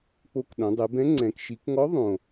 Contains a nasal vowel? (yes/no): yes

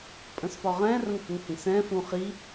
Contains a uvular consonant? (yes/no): yes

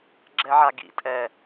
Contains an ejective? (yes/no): yes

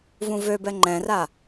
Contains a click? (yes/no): yes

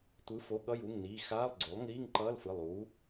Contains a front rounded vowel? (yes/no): no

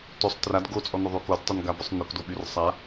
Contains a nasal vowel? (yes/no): no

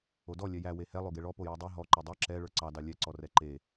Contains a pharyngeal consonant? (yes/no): no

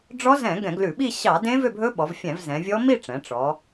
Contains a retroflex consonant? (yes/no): yes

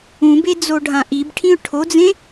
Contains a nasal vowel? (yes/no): yes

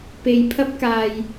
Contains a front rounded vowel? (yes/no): no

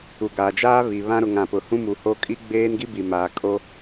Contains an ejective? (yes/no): yes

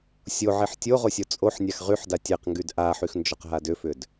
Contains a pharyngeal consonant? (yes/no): yes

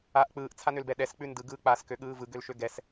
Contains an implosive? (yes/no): yes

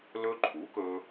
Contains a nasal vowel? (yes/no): no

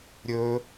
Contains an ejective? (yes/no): no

